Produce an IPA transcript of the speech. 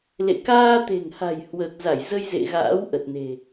lḛ˧˨ kaː˧t̪e̤˨˩ŋha̤˨˩j hwəː˨˩k̚za˧˩j zə˧j zḛ˧˨ɣa̰ː˧˥w ʔə˨˩t̚ne̤˨˩

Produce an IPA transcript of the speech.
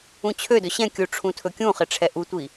ũt͡ɕʰødɵ ɕɛ̃kʲu ʈ͡ʂʰũtʰɵkʲũχɪ ʈ͡ʂʰɛʔutʷi

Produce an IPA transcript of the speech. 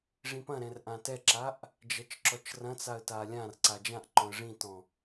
ʐĩpɐ̃ɾɛ̃r ʔãtɛǁaʔ | d͡ʒɐt͡ʃǁɔt͡ʃrɐ̃t͡saə̯ talʲãrǀa d͡ʒãʔǃɔ̃ə̯ ʐĩtɔ̃

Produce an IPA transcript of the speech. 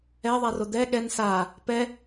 ɛðˤaro d̪ɛ ɠɛn sa | pɛ

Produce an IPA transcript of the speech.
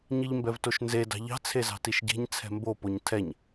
ɲiʎmbɛvtoʃnze dɑ̤ʎɑ̤ t͡sʰezɑ̤tiʃɟe̤ɲ t͡sʰɛ̤mbo poɲtʰɛɲ

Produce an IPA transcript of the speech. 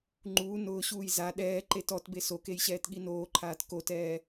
ŋ͡ǃuː nʊːɕuːj za ɗɛːǃet ɔtbe sokej ɕɛːtɠinoːǃʰaːt kotɛː

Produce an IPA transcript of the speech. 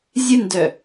zʲɨndœ

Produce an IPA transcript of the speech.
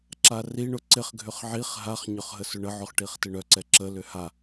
ǁariɳʊ ǀɪχɡʱʏχ ʕiχ ɦaχɲʏχ ɦəsʏɳəʕʊχ ʈiχtɪɳœǀɛ ǁəlʏ ha

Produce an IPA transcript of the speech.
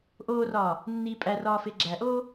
ʔoːrɒː | nːiːpʼærɒː feɡ͡ǁæʔoː

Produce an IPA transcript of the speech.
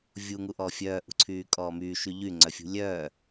vʲuŋuʔɔː fʲœːʔṳǀʰyːkʼɔː myːʃy ʎyŋ͡ǀœfʲṳ lʲœː

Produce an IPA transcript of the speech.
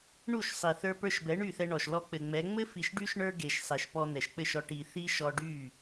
ɳu˦˨ʃsˤi˨ θə˞˧ pə˞˧ʃbɛ˨˦ ɳy˦˨θɛ˧ ɳɔ˨ʃlɔ˧ k͡pɘ˨ŋ͡mɛ˨˦ ŋ͡mɘ˦ fi˨ʃɖy˧ʃ ɳə˞˦ɡe˨ʃsˤe˨ʃ pɔ˧n̪ɛ˨ʃk͡pɘ˦˨ʃɔ˧ ʈi˨ θi˦ʃɔ˧ɖy˦˨

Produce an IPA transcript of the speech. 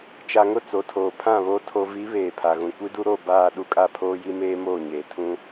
t͡ʃa˨ŋʊ˦˨ t͡so˨tʰoː˨pʰã˦˨βoː˦ tʰo˨vi˨˦ βeː˨pʰa˨ ɣũ˨kʷi˦du˦ɾo˦˨ baː˦˨ ɗu˦kʼa˦pʰoː˦ji˦ meː˦moː˦˨ɲeː˨ tʰũ˦

